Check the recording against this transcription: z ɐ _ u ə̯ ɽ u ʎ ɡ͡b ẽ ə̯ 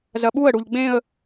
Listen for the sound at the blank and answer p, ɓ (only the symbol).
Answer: ɓ